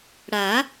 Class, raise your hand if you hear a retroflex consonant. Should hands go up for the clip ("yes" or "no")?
yes